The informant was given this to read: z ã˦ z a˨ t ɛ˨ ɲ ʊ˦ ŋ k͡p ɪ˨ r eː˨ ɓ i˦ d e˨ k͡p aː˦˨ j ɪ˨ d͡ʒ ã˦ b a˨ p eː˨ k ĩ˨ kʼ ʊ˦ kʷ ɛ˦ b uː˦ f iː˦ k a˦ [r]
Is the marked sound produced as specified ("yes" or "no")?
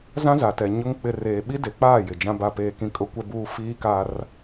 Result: yes